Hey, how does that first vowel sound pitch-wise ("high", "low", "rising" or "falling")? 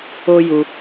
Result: high